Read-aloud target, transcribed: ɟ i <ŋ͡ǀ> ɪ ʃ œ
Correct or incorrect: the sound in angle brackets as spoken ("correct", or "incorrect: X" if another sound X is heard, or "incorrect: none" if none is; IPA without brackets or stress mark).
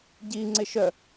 correct